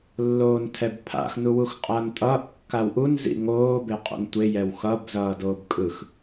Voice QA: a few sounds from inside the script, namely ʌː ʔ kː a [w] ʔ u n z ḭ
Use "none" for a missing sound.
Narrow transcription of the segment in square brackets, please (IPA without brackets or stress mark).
w